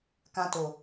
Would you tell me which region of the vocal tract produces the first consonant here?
velum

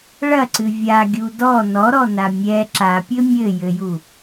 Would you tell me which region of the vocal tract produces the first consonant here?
retroflex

